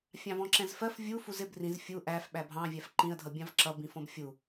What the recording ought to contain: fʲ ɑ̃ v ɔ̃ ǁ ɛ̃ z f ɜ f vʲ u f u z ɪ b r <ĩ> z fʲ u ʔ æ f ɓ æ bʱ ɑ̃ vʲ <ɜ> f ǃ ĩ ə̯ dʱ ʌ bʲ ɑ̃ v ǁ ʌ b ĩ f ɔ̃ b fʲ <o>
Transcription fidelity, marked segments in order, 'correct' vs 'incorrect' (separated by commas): correct, incorrect, incorrect